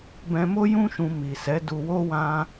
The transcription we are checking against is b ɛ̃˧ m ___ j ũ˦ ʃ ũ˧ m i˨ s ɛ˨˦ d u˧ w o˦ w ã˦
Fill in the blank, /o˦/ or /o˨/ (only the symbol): o˦